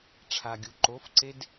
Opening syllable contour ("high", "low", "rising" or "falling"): low